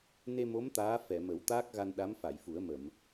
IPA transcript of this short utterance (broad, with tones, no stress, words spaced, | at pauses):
ne˧mo˧˥m t̪aː˧˥fɛ˨˩˨mə˨˩˦w t̪aː˦˥k̚ɣa˧n ɗa˧˥mfa˨˩˨jfu˨˩˦ə̯mə˨˩˨m